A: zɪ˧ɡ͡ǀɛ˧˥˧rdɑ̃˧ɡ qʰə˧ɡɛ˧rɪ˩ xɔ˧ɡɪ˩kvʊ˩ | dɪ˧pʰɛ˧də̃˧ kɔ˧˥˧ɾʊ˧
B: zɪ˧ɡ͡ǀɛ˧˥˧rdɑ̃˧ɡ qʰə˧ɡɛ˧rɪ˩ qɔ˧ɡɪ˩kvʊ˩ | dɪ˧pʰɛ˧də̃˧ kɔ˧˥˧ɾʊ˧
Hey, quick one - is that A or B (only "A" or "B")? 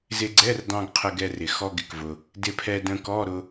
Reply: A